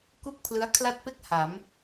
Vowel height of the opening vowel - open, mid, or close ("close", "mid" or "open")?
close